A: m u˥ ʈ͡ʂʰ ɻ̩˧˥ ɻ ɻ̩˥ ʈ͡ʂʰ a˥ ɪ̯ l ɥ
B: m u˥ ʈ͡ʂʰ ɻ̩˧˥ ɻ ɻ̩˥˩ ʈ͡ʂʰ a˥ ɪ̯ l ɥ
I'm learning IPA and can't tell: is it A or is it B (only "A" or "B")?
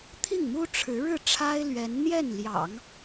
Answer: B